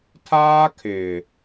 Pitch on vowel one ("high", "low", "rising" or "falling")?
high